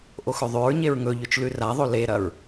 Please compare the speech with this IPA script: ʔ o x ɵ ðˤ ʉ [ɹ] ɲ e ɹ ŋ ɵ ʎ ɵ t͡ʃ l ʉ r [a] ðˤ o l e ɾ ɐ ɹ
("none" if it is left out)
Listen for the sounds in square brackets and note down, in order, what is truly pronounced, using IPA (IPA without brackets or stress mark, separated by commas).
ɹ, a